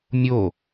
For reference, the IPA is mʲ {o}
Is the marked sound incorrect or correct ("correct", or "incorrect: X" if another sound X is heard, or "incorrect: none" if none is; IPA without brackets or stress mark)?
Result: correct